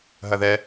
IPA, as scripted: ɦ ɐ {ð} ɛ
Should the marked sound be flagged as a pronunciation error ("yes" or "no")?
no